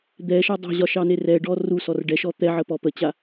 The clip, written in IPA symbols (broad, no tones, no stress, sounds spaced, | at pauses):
d̪ ɛ ʃ ɑ dˤ ɑ̤ ʑ ɒ ʃ ɑ n e r ɛ ɖ ɔ r u s ɔ r ɖ ɛ ʃ ɔ t̪ ɛ ʕ ə p ɔ p ə t͡ɕ a